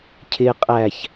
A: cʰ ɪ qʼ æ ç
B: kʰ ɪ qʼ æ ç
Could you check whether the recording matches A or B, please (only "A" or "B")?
A